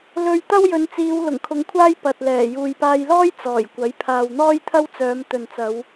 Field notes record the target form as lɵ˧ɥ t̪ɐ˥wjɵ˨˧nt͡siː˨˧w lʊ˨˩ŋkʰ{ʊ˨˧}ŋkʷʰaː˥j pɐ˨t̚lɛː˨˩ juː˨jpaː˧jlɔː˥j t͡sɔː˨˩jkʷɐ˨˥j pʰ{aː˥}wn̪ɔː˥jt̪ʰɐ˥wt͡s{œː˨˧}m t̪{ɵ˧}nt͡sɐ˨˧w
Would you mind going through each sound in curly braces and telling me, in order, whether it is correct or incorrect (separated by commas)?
correct, incorrect, correct, incorrect